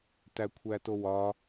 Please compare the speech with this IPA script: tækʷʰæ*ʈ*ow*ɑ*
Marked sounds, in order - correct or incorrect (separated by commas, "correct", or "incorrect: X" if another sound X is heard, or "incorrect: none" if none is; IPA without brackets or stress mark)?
incorrect: t, incorrect: ɒ